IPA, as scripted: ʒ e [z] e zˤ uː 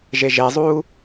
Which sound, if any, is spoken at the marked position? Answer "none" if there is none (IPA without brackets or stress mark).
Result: ʒ